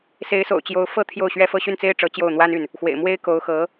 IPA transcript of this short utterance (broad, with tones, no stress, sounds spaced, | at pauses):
s e˧˥ ɪ̯ s o̰˨˩ ʊ̯ t͡ɕ j o˧˥ ʊ̯ f ɤ˥˧ t̪ʰ j o˥˩ ʊ̯ ɕ ɥ ɛ˥ f ɤ˥˧ ɕ y˥˩ n t͡s e˥ ɪ̯ ʈ͡ʂ ɤ˧˥ t͡ɕ j o˥˩ ʊ̯ n̪ w a˥ n y˥˩ n | x w ḛ˨˩ ɪ̯ m w e˥ ɪ̯ k o˧˥ ʊ̯ x ɤ˧˥